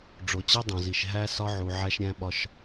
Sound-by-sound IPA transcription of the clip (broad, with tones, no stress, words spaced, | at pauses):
ɖ͡ʐo˨t͡ɕe˦dˤõ˨zi˨ʃ ɦæ˦ sɒ˦ʕu˨ ʕæ˦ʃɾʲæ̃˦ɓɒ˦ʃ